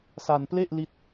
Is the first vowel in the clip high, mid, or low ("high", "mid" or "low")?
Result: low